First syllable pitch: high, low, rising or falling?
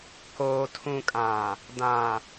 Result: low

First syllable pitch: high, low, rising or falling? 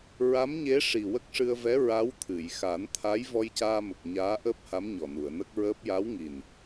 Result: rising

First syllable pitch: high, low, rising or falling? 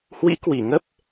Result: rising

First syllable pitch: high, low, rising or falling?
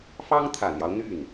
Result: high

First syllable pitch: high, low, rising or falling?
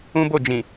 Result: high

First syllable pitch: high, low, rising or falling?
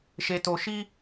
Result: low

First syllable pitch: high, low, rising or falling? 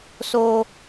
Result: high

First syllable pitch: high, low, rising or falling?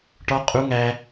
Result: high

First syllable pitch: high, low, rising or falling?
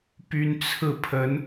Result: high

